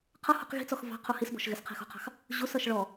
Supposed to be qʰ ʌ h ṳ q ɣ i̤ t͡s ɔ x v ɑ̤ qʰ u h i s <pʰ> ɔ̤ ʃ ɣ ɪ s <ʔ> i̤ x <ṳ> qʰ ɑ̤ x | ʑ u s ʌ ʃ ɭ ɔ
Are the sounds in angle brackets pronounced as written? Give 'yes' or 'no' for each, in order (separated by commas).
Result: no, no, yes